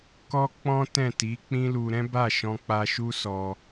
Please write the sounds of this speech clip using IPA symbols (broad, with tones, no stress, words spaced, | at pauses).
kɔ˦k͡pɔ̃˦tɛ̃˦˨ ti˨˦ k͡pĩ˦lu˧ ɾɛ̃˦ba˦˨ʃɔ̃˧k͡pa˧ ʃu˦sɔ˧